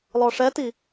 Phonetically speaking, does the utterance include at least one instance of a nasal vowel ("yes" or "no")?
no